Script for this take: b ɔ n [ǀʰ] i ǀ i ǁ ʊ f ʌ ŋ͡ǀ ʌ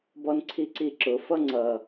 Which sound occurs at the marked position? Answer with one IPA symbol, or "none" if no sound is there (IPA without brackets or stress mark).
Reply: ǀʰ